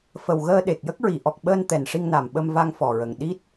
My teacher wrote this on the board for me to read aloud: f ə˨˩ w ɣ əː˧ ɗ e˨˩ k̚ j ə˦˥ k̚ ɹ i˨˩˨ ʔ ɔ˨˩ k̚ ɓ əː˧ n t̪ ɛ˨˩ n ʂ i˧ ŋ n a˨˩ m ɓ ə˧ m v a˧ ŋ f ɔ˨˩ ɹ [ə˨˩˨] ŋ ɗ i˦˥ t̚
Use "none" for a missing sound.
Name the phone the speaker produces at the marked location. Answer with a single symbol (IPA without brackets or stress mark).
ə˨˩